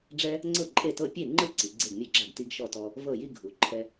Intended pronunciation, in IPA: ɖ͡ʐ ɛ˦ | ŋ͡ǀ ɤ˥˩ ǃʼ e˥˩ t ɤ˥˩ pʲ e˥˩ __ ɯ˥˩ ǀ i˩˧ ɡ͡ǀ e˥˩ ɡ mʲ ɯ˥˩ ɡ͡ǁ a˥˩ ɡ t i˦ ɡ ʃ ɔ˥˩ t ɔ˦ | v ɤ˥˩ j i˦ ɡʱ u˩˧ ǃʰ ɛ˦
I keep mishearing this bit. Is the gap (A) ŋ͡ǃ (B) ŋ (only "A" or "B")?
A